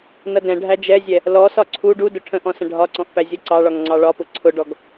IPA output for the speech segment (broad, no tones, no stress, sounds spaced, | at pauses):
n ʌ d ɛ̃ ɖʱ æ d͡ʒ ɛ zʲ ɛ | l ɔ s ɒ ǀʰ u ɖ u d ʊ ʈʰ ə̃ ʔ ɔ̃ s ə̃ ɖʱ ɒ ǀ ɔ̃ ʔ p æ zʲ ʌ ǀ ɑ ɭ ɒ ŋ ŋ͡ǀ ɑ ɭ ɒ p ʊ ǀʰ ʊ ɖ ɔ ɡ